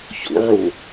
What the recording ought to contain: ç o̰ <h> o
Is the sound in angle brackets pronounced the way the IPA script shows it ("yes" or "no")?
no